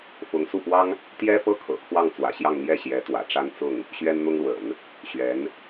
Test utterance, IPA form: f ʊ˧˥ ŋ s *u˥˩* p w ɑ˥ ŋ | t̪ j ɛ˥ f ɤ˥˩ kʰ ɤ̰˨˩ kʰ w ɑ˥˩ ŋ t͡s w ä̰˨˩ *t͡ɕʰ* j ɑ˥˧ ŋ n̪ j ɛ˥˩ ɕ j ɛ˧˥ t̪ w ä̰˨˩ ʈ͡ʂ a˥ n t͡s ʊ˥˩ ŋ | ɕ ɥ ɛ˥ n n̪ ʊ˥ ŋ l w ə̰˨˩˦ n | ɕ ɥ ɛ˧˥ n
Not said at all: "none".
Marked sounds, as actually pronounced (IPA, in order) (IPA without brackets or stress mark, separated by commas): u˥˩, ɕ